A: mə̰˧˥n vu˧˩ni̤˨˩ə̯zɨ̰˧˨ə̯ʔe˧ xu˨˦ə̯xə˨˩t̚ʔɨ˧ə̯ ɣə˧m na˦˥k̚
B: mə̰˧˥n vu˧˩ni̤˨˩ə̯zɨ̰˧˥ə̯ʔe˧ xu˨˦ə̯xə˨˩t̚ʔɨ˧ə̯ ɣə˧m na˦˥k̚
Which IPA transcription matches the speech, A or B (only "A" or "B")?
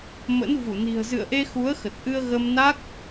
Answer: A